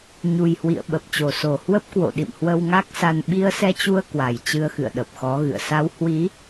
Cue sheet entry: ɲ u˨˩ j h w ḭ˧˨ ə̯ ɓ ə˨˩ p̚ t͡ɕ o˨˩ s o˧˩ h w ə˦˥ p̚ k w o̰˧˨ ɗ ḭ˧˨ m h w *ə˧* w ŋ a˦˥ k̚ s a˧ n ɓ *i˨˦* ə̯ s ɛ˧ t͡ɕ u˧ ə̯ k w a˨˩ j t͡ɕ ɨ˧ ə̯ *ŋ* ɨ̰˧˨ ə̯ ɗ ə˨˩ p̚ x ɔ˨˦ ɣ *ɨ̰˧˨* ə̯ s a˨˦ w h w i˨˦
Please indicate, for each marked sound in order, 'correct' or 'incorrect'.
correct, incorrect: i˧, incorrect: x, correct

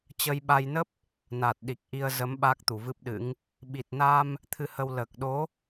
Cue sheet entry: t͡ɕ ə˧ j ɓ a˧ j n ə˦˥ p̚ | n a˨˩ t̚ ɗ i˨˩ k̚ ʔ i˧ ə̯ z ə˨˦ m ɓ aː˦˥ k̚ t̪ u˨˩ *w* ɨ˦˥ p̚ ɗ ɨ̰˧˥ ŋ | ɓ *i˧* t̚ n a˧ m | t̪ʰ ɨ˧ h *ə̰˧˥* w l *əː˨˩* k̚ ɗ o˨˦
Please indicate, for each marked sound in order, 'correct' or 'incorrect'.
incorrect: v, incorrect: i˨˩, incorrect: ə˧, correct

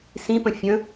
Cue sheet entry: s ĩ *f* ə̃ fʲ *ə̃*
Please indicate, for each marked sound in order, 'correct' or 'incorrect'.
incorrect: p, correct

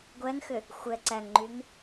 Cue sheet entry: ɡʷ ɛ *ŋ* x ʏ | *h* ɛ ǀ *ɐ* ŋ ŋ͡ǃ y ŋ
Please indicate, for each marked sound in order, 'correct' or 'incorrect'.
correct, incorrect: xʷ, incorrect: æ

